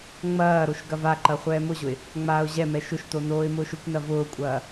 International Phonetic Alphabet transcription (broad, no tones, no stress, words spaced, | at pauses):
ŋ͡mɐːɾoʃ ɡɐvaǃɐ χʷɛːmʊʑʊɪ̯ | ŋ͡maːʊ̯ʑɛmɛ ʃʊʃto noːɪ̯mʊːʃʊkʷnɐ vʊːkʷʼɐː